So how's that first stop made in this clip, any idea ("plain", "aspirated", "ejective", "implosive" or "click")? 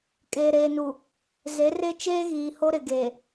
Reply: ejective